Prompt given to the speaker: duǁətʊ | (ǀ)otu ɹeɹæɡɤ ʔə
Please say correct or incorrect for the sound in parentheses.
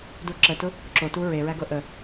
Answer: incorrect